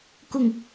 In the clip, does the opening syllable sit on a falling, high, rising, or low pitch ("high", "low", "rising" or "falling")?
falling